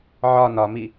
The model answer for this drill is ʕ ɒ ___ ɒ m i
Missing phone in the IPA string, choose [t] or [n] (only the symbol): n